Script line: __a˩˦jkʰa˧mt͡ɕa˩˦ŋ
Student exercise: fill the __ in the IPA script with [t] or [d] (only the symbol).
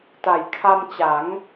t